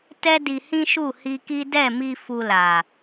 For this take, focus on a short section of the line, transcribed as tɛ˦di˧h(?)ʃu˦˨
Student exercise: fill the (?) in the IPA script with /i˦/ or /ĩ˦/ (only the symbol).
ĩ˦